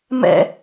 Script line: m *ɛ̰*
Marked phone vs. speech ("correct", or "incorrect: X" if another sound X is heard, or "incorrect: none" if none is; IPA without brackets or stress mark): correct